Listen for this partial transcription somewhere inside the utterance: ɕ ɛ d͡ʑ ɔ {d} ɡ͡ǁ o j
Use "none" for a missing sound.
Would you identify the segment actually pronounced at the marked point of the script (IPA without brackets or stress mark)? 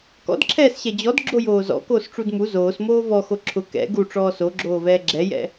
d